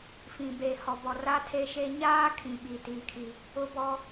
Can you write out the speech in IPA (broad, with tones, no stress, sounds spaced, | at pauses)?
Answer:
f ĩ˨ b eː˨ h ɔ˨ b ɔ˨ r a˦ tʰ e˦ ʃ e˦ ɲ aː˦ kʰ ĩ˨ ɓ i˨ t iː˨ kʰ i˨ | ʊ˦ b ɔ˦